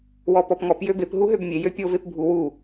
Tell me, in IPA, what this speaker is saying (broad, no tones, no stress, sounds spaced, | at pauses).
w ɔ p ɔ p ŋ ɔ p j ø b e p ɦ u ɦ ø b mʲ e j ø pʲ o v e p bʱ u w u